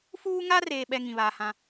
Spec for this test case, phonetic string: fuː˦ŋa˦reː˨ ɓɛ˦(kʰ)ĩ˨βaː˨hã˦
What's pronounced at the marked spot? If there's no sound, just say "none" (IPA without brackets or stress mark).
ŋ